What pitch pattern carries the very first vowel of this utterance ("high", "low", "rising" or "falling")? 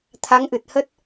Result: rising